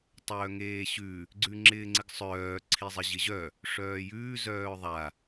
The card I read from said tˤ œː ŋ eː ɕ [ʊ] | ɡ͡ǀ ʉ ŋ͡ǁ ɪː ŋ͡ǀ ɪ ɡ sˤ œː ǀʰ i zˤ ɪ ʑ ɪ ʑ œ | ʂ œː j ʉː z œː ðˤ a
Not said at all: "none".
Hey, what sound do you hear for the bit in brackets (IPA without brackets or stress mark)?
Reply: ʉ